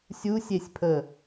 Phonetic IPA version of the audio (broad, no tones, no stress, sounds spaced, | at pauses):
sʲ u sʲ e sʲ pʰ ə